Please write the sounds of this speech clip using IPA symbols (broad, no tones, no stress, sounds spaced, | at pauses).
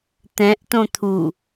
t̪ ɛ̃ ʔ t õ t̪ʰ u